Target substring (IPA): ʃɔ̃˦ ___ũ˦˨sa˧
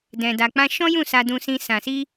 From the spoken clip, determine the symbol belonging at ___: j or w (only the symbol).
j